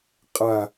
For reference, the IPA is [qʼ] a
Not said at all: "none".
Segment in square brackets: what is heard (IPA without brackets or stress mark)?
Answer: qʼ